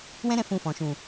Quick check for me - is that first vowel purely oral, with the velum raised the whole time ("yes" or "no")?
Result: no